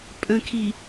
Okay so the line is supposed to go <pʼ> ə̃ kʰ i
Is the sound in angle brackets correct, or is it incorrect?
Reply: correct